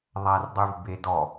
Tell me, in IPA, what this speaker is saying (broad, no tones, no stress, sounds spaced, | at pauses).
ðˤ æ r dˤ y v b e d ɔ